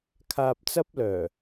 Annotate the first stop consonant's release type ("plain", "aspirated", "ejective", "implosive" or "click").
aspirated